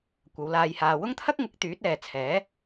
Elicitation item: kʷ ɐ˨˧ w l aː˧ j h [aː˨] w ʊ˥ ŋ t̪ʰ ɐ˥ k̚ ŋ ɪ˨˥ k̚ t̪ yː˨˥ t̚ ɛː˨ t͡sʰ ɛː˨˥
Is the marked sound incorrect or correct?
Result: correct